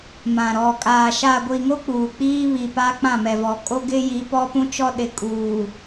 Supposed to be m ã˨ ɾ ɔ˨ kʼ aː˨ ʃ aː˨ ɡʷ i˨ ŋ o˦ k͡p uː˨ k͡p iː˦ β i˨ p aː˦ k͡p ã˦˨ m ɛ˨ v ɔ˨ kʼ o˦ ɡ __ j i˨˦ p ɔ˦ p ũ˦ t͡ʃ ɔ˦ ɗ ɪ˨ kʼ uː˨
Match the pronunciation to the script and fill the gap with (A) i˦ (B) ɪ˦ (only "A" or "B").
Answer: B